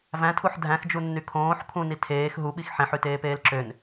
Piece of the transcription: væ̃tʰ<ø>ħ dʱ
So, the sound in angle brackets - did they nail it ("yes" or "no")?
no